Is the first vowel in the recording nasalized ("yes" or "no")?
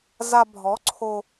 no